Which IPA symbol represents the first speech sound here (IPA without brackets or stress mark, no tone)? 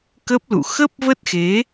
k